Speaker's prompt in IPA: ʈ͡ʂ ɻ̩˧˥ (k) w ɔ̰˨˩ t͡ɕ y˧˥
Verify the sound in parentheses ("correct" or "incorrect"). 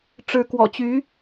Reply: correct